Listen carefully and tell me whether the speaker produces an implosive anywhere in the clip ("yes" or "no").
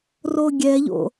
no